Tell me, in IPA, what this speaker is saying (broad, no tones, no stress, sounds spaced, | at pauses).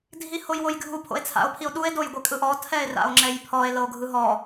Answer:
dʱ i h o j w o j ɡʱ u pʰ o̰ e̯ t͡sʰ a̰ o̯ pʰ i o̯ ɗ u e̯ d o j ɡʷ e kʼ ɯ ʔ ɔ tʰ ɛ e̯ r a̰ o̯ ŋ͡ǁ ɛ j pʰ ɔ e̯ l ɤ o̯ ɡʱ ɯ ɦ ɔ